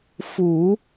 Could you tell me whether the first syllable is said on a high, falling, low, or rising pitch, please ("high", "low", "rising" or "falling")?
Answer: low